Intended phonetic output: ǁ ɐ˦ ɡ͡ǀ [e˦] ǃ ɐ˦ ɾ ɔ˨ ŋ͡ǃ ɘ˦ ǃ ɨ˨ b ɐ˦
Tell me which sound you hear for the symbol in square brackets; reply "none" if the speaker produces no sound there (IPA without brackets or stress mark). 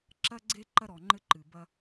e˦